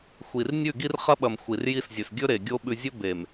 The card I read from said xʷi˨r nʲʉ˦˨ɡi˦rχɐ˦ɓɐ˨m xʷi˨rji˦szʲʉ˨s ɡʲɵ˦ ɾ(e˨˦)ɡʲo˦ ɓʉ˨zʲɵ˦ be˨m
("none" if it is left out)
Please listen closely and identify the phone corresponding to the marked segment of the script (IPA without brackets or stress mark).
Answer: e˨